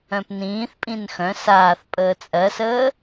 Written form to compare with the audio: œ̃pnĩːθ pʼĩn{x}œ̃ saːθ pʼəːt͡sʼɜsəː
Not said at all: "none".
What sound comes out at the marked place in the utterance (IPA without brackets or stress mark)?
x